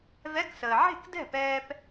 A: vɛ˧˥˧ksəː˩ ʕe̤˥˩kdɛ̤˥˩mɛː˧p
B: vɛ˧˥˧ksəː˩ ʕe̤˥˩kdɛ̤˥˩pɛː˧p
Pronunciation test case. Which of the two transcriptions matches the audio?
B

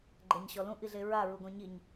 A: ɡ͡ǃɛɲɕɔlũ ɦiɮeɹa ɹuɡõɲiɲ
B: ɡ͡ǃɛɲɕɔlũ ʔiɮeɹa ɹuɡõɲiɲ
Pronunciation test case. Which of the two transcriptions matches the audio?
B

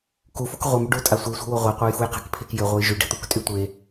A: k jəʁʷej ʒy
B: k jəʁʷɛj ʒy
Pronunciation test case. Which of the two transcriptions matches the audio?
B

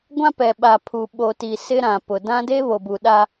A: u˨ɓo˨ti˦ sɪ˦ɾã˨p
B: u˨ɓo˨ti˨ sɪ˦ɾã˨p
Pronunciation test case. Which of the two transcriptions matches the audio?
B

